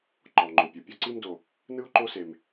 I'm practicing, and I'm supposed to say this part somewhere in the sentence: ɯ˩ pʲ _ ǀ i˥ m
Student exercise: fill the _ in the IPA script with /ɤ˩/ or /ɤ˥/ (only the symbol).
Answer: ɤ˥